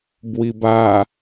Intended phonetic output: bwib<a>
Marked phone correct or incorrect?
correct